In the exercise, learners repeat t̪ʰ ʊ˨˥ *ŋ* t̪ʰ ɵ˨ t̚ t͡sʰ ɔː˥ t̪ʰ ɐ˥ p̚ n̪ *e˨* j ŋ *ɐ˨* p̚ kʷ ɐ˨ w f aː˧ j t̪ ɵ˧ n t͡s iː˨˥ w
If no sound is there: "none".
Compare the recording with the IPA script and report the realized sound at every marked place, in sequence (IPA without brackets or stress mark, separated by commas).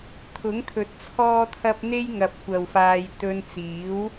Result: ŋ, e˥, ɐ˨